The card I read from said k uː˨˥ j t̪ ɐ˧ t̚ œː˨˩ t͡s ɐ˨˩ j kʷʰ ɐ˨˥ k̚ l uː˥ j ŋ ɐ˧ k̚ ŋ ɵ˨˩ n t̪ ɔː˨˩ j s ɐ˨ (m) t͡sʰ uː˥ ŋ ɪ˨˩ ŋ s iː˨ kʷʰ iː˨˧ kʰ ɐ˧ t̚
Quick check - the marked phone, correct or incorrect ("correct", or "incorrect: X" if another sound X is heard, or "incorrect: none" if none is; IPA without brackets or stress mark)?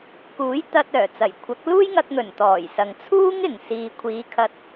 incorrect: ŋ